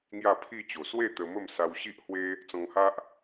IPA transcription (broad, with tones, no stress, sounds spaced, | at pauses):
ŋ j a˥˧ pʰ i˥˧ t͡ɕ o˨˩ s w e˥˧ t̪ ə˧ m ə˥˧ m s a˧ w ɕ i˦ ʔ h w e˦ | t͡s ɔ̃˧ ŋ h a˦ ʔ